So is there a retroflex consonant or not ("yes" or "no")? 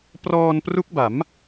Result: no